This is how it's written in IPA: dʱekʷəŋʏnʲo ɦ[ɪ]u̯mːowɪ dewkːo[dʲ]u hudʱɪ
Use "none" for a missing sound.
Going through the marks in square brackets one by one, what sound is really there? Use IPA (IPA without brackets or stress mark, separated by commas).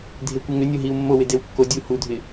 i, dʲ